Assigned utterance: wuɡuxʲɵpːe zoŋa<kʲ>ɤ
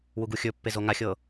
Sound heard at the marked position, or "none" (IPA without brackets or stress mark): xʲ